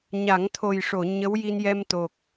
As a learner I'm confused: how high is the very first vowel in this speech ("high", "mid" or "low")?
low